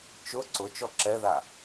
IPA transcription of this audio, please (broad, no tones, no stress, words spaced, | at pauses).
t͡ʃʊ ǀʊ t͡ʃɔǁɛða